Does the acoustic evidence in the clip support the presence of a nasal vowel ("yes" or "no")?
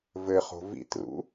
no